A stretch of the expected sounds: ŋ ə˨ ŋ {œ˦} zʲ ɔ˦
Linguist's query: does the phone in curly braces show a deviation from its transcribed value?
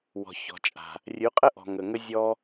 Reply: yes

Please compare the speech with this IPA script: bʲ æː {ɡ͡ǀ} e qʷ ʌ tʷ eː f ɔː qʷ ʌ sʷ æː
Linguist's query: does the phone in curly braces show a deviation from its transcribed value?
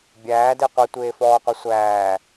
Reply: yes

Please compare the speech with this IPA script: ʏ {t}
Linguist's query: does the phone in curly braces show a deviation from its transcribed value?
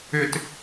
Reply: no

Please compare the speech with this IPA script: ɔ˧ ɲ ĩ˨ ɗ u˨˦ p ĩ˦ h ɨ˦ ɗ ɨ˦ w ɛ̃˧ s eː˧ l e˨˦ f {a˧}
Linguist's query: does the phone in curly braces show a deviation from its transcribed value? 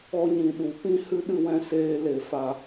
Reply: no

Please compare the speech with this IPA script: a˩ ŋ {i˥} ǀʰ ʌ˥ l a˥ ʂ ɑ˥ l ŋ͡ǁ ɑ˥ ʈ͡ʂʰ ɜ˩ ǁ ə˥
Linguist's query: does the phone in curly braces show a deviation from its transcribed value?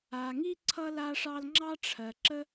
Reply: no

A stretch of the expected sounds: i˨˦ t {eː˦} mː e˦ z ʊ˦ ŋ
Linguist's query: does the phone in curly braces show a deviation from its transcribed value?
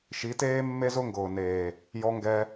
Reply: no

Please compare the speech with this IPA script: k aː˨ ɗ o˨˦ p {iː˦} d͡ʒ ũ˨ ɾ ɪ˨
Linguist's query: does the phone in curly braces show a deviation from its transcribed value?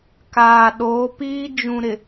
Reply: no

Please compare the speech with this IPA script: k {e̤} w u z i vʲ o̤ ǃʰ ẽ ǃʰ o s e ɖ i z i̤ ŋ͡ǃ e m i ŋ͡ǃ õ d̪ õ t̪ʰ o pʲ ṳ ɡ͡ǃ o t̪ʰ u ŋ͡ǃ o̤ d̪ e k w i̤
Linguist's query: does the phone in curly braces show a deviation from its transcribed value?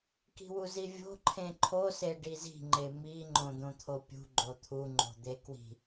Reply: yes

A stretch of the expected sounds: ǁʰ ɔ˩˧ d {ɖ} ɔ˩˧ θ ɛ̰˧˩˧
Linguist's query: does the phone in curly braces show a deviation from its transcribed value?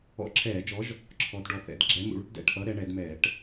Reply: no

